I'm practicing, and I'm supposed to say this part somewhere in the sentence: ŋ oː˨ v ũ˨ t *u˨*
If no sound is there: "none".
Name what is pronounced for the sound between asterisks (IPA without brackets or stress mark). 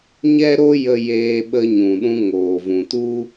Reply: u˧